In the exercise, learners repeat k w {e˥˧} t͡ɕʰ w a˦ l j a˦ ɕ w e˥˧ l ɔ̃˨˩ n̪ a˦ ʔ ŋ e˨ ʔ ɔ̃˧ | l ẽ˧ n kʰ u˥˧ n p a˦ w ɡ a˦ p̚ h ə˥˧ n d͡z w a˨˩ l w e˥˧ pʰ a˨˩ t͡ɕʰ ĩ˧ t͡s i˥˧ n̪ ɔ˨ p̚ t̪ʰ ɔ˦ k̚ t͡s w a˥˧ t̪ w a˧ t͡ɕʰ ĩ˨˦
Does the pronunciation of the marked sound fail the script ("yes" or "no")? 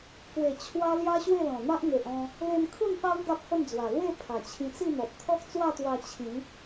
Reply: yes